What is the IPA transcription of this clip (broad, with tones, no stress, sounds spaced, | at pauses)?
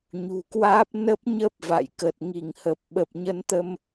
ɲ ṳ˨˩ k w aː˦˥ p̚ n ə˦˥ p̚ ɲ ə˦˥ p̚ v a̰˧˨ j k ə˨˩ t̚ ŋ i˧˩ ŋ h ə˨˩ p̚ ɓ ə˨˩ p̚ ɲ ə˨˦ n t̪ ə˧ m